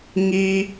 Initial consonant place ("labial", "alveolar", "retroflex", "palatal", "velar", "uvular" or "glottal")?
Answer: velar